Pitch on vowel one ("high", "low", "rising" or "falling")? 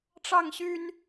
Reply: falling